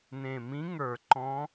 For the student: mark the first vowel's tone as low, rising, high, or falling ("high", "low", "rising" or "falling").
low